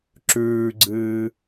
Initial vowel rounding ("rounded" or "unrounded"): rounded